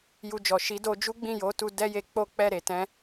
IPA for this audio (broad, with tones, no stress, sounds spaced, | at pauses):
j u˧ d͡ʒ ɔ˨ ʃ i˨˦ d o˧ d͡ʒ u˦ ɡ͡b ĩ˦˨ j o˨˦ t u˧ d ɛ˦ j e˧ k͡p o˦ k͡p ɛ˦˨ ɾ e˨ t ɛ̃˧